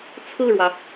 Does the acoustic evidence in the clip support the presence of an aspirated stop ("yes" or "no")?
yes